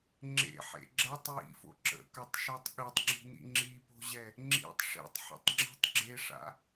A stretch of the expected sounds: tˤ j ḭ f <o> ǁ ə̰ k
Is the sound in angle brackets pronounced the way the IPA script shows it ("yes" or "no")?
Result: no